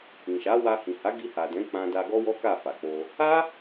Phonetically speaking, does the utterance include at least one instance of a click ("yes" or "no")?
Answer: no